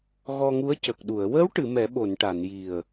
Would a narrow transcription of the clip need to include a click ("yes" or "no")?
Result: no